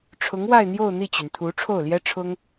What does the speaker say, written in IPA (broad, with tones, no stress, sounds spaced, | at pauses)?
ʈ͡ʂʰ ʊ˧˥ ŋ w a˥˧ ɪ̯ n̪ j o˥˧ ʊ̯ n̪ i˥˩ t͡ɕ y˩ n t̪ʰ u˧˥ ʈ͡ʂʰ o˥˩ ʊ̯ l j ɛ˥ ʈ͡ʂʰ ʊ˥ ŋ